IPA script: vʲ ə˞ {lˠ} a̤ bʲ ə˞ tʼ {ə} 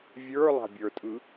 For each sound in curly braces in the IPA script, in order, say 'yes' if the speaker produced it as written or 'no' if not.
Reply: yes, no

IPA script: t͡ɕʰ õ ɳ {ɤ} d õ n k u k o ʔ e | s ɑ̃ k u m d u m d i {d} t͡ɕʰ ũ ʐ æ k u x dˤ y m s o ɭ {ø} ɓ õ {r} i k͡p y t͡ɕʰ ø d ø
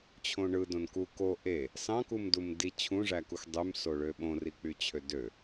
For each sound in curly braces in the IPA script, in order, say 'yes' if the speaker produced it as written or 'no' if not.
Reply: no, no, yes, yes

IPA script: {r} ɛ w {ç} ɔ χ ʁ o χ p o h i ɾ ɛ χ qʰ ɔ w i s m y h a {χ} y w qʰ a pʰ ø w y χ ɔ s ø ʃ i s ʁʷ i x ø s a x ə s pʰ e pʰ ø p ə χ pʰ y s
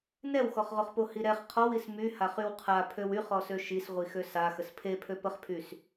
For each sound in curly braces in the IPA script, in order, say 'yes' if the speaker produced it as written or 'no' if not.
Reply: no, no, yes

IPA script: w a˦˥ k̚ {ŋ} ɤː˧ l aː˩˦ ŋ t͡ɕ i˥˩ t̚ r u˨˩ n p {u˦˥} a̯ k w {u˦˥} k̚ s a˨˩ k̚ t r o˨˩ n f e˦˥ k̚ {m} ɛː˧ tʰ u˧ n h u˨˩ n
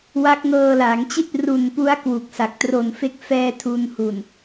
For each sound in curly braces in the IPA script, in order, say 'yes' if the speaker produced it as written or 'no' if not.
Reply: yes, yes, no, no

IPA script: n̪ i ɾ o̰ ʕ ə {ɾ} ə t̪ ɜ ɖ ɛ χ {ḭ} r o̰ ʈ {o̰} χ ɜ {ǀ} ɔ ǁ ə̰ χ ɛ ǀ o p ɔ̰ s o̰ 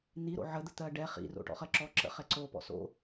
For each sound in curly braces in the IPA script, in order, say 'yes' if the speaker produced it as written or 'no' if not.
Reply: no, yes, no, no

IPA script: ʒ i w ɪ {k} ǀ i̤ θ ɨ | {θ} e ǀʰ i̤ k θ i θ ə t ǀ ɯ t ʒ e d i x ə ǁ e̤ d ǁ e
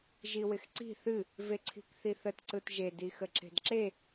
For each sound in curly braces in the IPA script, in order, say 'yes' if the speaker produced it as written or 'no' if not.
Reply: no, no

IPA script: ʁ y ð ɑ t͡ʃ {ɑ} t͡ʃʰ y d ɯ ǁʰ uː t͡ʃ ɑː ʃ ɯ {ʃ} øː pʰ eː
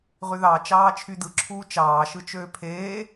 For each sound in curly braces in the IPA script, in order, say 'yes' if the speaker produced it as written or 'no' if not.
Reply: no, no

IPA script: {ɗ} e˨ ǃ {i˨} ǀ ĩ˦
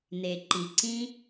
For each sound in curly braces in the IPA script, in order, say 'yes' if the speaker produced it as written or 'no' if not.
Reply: no, yes

